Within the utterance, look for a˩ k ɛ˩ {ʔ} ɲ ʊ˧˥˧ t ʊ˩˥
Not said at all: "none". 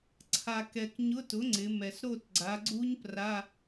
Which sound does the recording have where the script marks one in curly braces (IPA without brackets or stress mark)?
k